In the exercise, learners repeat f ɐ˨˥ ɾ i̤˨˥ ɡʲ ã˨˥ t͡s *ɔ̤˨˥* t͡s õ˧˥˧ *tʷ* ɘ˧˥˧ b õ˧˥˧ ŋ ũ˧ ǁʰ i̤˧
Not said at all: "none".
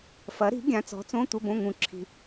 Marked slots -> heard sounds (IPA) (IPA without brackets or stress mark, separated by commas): ɔ̤˨˥, tʷ